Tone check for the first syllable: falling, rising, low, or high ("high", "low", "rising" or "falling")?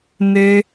high